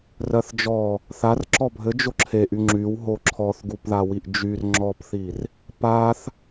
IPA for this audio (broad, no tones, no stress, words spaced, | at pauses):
rɜθd͡ʒɔ | θar ǁɔbʱɘ d͡ʒoǁʰeʔy ŋ͡ǁyw ɦoǁʰɔθ ɡupðawiʔd͡ʒyr ŋ͡ǁɔpθir | paθ